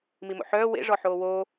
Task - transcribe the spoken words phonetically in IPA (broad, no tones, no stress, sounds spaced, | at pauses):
m i m o̰ ħ œː w ḛ ʐ ɔ ħ oː w oː